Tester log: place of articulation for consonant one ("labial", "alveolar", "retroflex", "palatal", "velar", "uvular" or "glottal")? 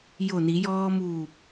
palatal